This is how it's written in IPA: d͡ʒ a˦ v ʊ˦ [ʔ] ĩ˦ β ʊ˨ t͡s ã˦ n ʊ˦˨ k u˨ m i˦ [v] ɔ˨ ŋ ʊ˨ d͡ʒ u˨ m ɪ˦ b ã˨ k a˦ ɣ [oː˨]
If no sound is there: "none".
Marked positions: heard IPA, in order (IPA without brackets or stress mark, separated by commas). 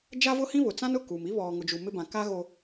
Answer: h, β, o˨